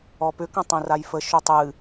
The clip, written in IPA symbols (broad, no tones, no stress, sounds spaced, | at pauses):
ɔ p ʏ k ə̃ tˤ õ r a j f ə ʃ o tˤ ɨ